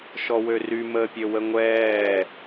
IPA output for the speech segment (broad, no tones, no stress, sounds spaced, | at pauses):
ʃ ɔ w ø r y m əː pʲ ø w ə ŋʷ ɛː